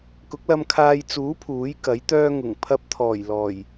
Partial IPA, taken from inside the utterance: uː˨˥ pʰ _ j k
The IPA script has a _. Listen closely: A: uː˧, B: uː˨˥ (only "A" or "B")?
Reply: B